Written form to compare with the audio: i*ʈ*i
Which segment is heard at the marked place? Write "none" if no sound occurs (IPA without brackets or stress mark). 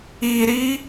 ɾ